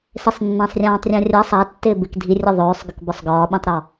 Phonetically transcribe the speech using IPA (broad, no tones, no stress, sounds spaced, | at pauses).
s ɪ sˤ nː ã sˤ rʲ ãː tˤ rʲ ã rʲ a sˤ a tː ɪː b ɪ k dʱ i rʲ ɔ ðˤ ɵː sˤ ɡ ɪ k b ɒ sˤ ɡ ɒː ɓ ĩ tˤ ɾ ɒ